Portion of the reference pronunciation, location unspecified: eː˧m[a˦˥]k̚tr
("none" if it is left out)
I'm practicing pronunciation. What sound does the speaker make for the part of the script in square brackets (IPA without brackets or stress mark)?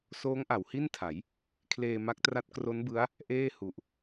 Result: a˦˥